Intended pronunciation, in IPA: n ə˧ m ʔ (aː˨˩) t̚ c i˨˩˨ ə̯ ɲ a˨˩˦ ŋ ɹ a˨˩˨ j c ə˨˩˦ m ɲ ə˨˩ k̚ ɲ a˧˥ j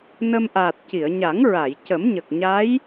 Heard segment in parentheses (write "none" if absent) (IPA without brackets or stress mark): aː˨˩